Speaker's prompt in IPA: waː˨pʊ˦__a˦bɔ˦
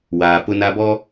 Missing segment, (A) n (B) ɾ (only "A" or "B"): A